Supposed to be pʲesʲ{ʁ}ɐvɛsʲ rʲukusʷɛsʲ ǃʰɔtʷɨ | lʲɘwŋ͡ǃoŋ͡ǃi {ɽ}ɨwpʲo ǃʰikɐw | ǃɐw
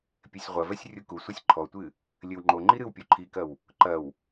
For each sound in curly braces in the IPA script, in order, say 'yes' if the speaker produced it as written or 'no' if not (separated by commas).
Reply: no, no